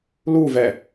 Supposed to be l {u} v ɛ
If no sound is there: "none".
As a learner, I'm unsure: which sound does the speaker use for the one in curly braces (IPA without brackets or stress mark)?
u